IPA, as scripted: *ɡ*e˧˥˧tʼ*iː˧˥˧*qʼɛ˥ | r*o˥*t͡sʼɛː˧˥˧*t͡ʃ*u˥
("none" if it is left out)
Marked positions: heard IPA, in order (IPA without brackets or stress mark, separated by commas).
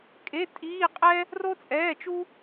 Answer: kʼ, iː˧˥˧, o˥, t͡ʃ